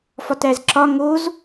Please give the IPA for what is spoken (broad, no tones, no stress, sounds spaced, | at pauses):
f ɒ t æ z ǁ ɒ ŋ o z